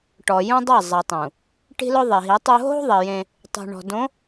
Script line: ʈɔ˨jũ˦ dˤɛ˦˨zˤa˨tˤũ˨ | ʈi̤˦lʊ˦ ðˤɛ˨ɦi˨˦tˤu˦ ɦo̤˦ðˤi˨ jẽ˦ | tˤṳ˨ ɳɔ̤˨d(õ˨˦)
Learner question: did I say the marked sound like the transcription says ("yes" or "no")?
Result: yes